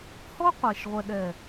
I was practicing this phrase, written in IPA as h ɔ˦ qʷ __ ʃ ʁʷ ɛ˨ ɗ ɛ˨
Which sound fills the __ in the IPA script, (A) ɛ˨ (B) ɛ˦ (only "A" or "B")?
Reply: A